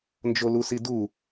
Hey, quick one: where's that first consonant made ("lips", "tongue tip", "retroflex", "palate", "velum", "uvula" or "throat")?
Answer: tongue tip